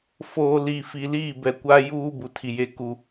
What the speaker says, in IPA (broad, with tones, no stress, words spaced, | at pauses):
foː˨ liː˨fi˨liː˦˨ bɛ˨kʷa˦ juː˦ bu˨tʰi˨je˦ku˦